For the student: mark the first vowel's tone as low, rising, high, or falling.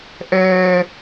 high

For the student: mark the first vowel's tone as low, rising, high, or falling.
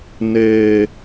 low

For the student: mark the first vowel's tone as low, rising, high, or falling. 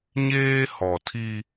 high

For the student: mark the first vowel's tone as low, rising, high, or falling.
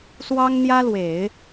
high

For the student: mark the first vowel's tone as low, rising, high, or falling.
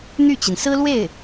falling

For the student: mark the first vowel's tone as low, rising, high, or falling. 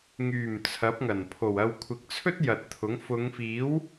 low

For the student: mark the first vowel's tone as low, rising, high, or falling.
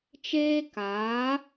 high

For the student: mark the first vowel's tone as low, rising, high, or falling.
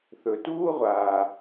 low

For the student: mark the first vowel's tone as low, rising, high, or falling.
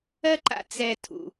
high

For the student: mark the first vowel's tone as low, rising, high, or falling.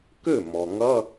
falling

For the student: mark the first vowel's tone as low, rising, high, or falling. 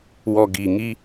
low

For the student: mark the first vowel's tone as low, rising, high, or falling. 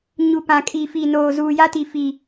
low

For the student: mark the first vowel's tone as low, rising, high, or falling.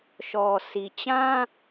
low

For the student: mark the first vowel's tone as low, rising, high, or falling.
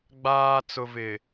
low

